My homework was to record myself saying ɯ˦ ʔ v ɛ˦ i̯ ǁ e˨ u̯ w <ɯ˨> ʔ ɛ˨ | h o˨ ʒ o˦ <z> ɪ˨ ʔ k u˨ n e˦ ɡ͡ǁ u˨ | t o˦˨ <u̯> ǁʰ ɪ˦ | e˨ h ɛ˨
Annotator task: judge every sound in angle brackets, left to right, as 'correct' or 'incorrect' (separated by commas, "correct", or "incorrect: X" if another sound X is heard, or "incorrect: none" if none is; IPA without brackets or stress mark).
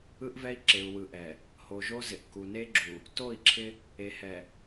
correct, correct, incorrect: i̯